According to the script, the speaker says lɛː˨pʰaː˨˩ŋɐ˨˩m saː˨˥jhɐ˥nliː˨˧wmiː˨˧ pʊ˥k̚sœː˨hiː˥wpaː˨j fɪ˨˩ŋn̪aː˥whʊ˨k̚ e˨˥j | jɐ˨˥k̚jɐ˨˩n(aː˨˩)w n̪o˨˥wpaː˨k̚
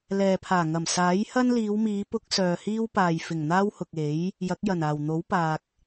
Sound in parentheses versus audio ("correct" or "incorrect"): correct